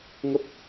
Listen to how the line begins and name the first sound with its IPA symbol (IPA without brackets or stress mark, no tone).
ŋ